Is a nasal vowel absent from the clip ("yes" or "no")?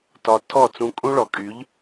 no